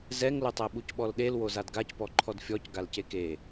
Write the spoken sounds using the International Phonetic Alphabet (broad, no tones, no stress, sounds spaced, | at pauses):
z ɛ ŋ l ʊ tˤ e ɓ u c ɓ ɔ l ɗ e l w o z a d ɡ a c p ɔ ǃʰ ɔ d fʲ ɔ c ɡ a l c e k e